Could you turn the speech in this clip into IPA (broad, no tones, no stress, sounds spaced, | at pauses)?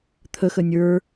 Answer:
t̪ʰ ə x ə nʲ ə˞